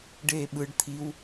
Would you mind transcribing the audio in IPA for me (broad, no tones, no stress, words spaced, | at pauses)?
ɖeːɓɯɖ t̪ʰiw